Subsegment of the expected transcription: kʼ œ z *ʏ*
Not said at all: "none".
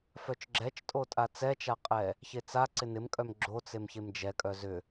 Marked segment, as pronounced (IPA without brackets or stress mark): ʏ